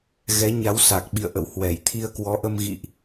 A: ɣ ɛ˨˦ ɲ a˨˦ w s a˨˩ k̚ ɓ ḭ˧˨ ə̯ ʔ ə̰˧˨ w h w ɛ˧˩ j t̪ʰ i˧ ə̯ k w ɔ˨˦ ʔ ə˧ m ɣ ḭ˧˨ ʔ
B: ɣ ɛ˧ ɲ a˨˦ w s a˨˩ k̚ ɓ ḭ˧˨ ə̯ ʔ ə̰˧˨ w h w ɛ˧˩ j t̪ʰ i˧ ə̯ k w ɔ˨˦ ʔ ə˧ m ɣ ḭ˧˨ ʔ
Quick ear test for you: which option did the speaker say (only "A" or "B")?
A